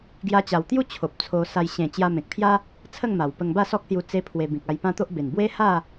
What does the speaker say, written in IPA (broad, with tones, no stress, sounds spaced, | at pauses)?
ɡ j a˧ t͡ɕ a˨˩ w t̪ j u˥˧ t͡ɕʰ o˨ p̚ t͡sʰ o˧ s a˧ j ɕ ẽ˨˩ t͡ɕ j a˧ m ẽ˨ k̚ pʰ j a˦ | t͡sʰ ə˥˧ ŋ m a˨˩ w p ə˧ ŋ b a˥˧ s ɔ˦ k̚ s j u˧ t͡s e˦ pʰ w e˧ b ĩ˨ k̚ a˧ j p ã˦ t̪ o˦ ʔ b e˨˩ n b w e˦ h a˥˧